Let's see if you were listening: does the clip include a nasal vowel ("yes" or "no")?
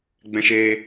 yes